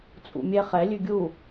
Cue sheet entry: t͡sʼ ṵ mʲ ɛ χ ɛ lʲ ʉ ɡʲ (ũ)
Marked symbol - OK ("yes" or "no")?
no